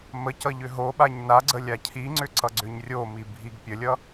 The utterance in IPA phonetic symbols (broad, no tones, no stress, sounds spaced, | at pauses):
m ə c ʌ ʎ ʏ ɦ o ɓ a ɲ n a ɡ͡ǀ ə lʲ a cʰ i ŋ͡ǀ ʏ ǀ ʌ ɡ͡ǀ ʏ ɲ rʲ o m i bʱ i ɡ pʲ ə lʲ ʌ